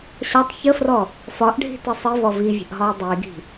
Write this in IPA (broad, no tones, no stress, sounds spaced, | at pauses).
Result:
ɕ ɒ tˤ ç ə f r ɔ | f ɒ ʔ ɖʱ i̤ t i sˤ i v ɔ v i vʲ ə̤ ʔ ɦ ɒ u̯ dˤ i ɡ i̤